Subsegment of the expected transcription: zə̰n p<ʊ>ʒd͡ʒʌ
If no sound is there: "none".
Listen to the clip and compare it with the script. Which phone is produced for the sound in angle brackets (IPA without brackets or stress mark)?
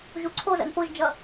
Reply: ʊ